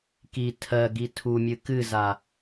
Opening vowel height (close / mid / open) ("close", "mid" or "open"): close